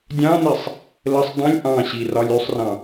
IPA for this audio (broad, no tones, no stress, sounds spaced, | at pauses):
dʲ ɑ̃ n i sˤ | l ə sˤ dˤ ə̃ lʲ ʔ ɑ̃ ɕ i r ɒ lʲ y sˤ r ɑ̃